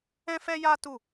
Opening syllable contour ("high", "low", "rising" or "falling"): high